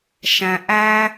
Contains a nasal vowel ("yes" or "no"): yes